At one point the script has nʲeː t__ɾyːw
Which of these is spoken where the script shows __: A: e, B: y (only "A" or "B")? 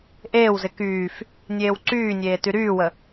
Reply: B